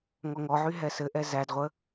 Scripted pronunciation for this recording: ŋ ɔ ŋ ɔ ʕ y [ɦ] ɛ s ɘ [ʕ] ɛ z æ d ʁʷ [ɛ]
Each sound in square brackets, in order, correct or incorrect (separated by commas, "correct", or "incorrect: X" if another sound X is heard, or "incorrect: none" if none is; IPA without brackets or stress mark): correct, incorrect: ʔ, incorrect: ə